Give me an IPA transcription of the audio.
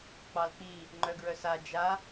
k͡pɑlk͡pi | ŋ͡ǃœɡɹœsa d͡ʒa

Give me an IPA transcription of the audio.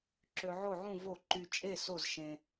ǁø˧ʕo˥˨ʕũ˥˨ vo˥˨ ǃy˧t͡ʃʼe˥˨ so˥˨z ʃẽ˧

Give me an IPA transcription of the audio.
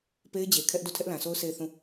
pe˦ɪ̯d͡ʑe˨ kʰɛ˦ʔdo˦˨ tʰɛ˦ʔlã˨sʰo˦ʊ̯ se˦˨ɪ̯θũ˦˨

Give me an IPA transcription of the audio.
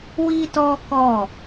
wi˦tɔ˦kɔ˦˨

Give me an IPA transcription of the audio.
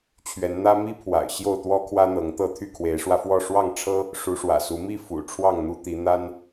t͡ɕʰɥɛ˨˦nn̪ä˦ mi˦pʰwa̰˨˩ɪ̯ ɕjo˥˨ʊ̯t̪wɔ˦kʰwä˦ n̪ɤ˨˦ŋt̪ɤ˥˨ t̪ʰy˥˨kʰwe˨˦ɪ̯ʂwä˧fwɔ˥˨ ʂwɑ˥˨ŋʈ͡ʂʰɤ˦ | ʂu˨˦ʂwä̰˨˩su˨˦ mi˥˨fṵ˨˩ ʈ͡ʂʰwɑ˥˨ŋn̪u˦t̪i˨˦ n̪a˦n

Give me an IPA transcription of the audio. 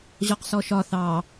ʑɔqsɔʃɒ θɑ

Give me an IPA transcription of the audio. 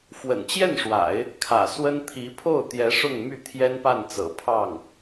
fwə̰˨˩nt͡ɕjɛ˥˩nʂwa̰˨˩˦ɪ̯ | kʰä̰˨˩ swə˥n t̪ʰi˧˥pʰo˥˩ʊ̯t̪jɛ˧˥ ʂʊ˥˧ŋmy˥˩ t̪ʰjɛ˥npa˥˩nt͡sɤ̰˨˩pʰɑ˥˩ŋ

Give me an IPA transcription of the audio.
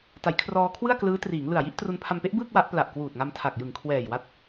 ta˩˦jkʰrɔː˧kʰwɯ˥˩a̯klɯː˦˥ triː˩˦ŋlɯ˨˩a̯ji˦˥ʔ tru˧npʰa˧mpe˦˥ʔbɯː˥˩k̚ wa˦˥ʔpla˨˩ʔkwuː˨˩t̚ŋa˧m tʰa˨˩k̚jɯ˨˩ŋkʰwɛː˨˩j wa˦˥t̚

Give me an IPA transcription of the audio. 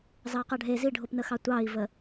zɑqaɖʱe ziɖʱopnəxɑ tʷɑi̯və

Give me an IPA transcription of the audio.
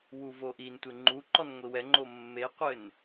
wuvoʔintʷe ŋ͡ǃuǃɔn ŋʷiwɛŋ͡ǃo mːeqʷɘn

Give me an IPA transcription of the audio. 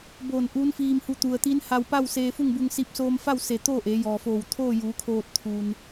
boː˧˩n ʔuː˧˥nfiː˧mhu˧ t̪u˩ə̯t̪iː˧˥nha˧w pa˥˨wseː˧fu˥˨ŋbu˧ŋ si˧p̚soː˧mfa˥˨wse˧˩ t̪oː˥˨ ʔeː˩˧jɔː˩foː˧˩w t̪ʰoː˥˨juː˩˧kʰoː˧t̚ t̪ʰu˩n

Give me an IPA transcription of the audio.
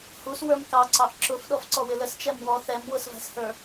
huswə˞m kɑǀɑʔ ǁʊf ɗɔfǀɔwɪləs t͡ʃɛmwɔ θɛm wʊsvæ̤shə˞

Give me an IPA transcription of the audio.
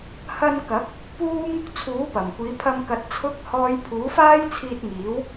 hɐ˧nkɐ˨˥k̚ | puː˥ŋ | t͡sʰuː˨˥ pɐ˨˩mkʷiː˨˧pʰɐ˧mkɐ˨˥t̚ t͡sʰʊ˨˥k̚hɔː˨j pʰuː˨˥faː˥jt͡sʰiː˧t̚ŋiː˨˥w

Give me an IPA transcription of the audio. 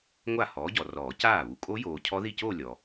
ŋʷa˥˩ hɔː˨˥ɟɔ˨rɔː˨˩˦ caː˥˩βu˨ kʼo˦˥joː˨ cʰɔ˦˥ði˥˩coː˥˧ lʲɔ˨

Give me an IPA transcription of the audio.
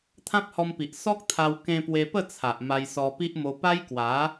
t̪ʰã˦p̚hɔ˧mpi˨ʔ sɔ˦k̚t̪ʰa˧w kẽ˧pwe˧pə˥˧t͡sʰa˨ʔ ma˧jsɔ˧pi˦ʔmo˧ pa˦jkwa˨˦

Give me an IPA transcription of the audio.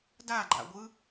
daɡ͡ǃa̰ɡʷɯ

